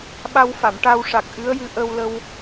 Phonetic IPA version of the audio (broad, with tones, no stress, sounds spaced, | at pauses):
ɓ a˧ w f a˨˩˨ m ʈ a˧ w ʂ a˨˩ k̚ ʔ ɨ˧˥ ə̯ j ɨ˧ ʔ ə˧ w l ə˧ w